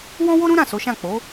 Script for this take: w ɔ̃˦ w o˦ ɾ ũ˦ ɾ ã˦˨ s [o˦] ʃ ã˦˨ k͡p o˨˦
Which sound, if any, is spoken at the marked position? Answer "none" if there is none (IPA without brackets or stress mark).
o˨˦